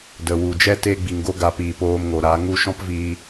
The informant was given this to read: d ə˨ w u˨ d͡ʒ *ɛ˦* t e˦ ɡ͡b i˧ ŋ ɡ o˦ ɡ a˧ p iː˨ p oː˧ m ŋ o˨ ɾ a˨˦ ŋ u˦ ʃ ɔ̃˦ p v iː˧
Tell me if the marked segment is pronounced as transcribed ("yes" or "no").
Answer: yes